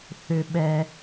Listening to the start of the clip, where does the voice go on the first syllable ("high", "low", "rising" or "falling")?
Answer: high